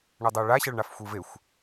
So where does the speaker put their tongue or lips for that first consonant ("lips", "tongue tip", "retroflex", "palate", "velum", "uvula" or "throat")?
retroflex